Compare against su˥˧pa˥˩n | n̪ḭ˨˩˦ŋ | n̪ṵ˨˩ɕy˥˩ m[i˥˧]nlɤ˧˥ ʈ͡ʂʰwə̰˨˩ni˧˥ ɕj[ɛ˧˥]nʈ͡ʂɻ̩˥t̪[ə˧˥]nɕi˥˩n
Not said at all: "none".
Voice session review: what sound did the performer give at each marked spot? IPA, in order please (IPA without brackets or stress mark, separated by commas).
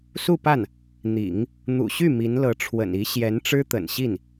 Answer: i˧˥, ɛ˧˥, ə̰˨˩